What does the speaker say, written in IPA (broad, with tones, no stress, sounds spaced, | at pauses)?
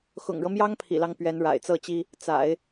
x ʊ̰˨˩ ŋ ɻ ɤ˦ m j ɑ˥ ŋ pʰ ḭ˨˩ l ɑ˦ ŋ p ɥ ɛ˧˥ n ɻ a̰˨˩ ɪ̯ t͡s ɤ˥˩ t͡ɕ i˥ | t͡s a̰˨˩˦ ɪ̯